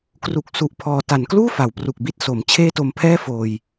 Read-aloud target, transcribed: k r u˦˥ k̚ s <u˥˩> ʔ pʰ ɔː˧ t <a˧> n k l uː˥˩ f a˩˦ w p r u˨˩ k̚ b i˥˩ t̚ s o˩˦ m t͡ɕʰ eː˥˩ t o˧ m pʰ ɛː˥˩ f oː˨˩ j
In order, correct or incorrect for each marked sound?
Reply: incorrect: u˦˥, incorrect: a˩˦

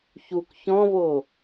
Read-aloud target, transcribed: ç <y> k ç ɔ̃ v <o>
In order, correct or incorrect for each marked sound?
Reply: incorrect: u, correct

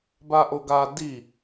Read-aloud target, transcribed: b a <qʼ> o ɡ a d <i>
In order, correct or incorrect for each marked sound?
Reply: incorrect: ʔ, correct

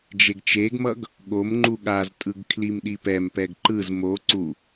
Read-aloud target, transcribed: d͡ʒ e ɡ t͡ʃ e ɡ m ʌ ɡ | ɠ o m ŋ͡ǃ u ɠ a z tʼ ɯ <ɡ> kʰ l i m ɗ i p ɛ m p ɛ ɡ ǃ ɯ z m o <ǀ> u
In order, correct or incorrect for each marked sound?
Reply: correct, correct

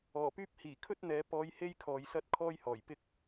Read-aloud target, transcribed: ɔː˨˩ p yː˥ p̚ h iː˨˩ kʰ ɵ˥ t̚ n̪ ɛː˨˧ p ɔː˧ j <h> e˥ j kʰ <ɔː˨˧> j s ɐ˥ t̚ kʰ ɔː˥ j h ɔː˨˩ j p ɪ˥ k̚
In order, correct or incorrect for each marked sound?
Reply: correct, incorrect: ɔː˨

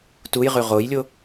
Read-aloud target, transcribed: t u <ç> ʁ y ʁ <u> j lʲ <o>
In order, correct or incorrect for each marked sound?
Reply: incorrect: j, incorrect: o, correct

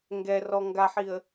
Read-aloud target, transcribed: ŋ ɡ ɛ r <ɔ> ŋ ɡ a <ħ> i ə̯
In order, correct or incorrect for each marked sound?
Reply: correct, correct

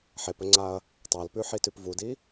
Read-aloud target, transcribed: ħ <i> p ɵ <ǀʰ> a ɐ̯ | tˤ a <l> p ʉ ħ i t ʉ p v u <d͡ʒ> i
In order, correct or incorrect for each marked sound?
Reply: incorrect: e, incorrect: ŋ͡ǀ, correct, incorrect: d

